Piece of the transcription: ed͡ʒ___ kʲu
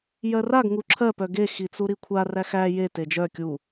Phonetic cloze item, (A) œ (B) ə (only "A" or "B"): A